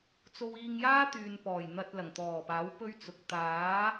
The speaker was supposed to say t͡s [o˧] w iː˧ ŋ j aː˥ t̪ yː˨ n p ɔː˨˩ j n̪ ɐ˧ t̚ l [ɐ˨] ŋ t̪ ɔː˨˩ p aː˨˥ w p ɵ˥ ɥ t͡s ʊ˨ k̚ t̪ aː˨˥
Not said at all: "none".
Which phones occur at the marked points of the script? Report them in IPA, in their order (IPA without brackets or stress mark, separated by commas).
o˧, ɐ˨˩